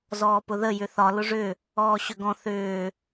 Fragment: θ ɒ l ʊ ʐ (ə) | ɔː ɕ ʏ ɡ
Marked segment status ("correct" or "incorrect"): incorrect